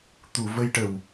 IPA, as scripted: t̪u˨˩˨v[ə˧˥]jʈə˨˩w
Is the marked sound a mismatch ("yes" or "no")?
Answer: yes